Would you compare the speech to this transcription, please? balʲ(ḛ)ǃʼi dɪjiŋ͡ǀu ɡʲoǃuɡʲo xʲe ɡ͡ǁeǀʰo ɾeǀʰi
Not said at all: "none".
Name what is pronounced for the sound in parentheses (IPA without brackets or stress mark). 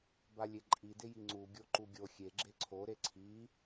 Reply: e